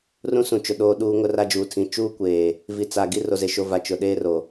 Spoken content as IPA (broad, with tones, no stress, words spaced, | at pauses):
rũ˦sũ˨t͡ʃʊ˨ ɗoː˦ɗuː˦ ŋʊ˦ra˦d͡ʒuː˨tʰĩ˨ t͡ʃuː˦kʷeː˨ | vi˨t͡sa˨ɡi˦ ro˨ze˨ʃo˨va˨ t͡ʃʊ˨ɗeː˦ ro˨